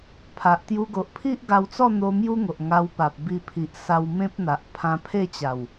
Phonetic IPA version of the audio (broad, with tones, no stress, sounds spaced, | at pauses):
pʰ a˨ ʔ t̪ j u˧ ɡ o˨ ʔ pʰ i˦ ʔ ɡ a˧ w t͡s ɔ˥˧ n̪ o˧ m j u˦ ŋ o˨ ʔ ŋ a˧ w p a˨ p̚ b i˧ pʰ i˨ ʔ s a˧ w m ẽ˦ p̚ n̪ a˨ ʔ pʰ ã˧ pʰ e˥˧ t͡ɕ a˨˩ w